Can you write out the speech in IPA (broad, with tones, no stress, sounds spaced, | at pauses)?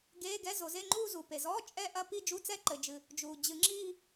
ɡ eː˧˥˧ ɡ ɛ˧˥˧ z o˨˩˦ z e˧˥˧ ŋ͡ǃ uː˥˧ z u˩ p e˩ z ɔː˧˥˧ t͡ʃʼ ɛ˥˧ ʔ ɐ˥˧ p i˥˧ d͡ʒ u˧˥˧ t͡s ɛ˥˧ ǃ ɘ˩ d͡ʒ ɨ˩ | d͡ʒ uː˩ d͡ʑ ɨ˨˩˦ ŋ͡ǁ iː˥˧